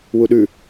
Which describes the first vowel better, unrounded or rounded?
rounded